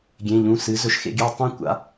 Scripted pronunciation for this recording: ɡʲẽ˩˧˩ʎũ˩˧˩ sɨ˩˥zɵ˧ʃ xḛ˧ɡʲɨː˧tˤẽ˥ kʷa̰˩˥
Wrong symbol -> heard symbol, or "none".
none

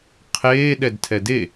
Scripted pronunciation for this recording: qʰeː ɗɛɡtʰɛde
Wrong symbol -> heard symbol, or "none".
ɡ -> d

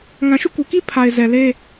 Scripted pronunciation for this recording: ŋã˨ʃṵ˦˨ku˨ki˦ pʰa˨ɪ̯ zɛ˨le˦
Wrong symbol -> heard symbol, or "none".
none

